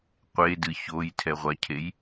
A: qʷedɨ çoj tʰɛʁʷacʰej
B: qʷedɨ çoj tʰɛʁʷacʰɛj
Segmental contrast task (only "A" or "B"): A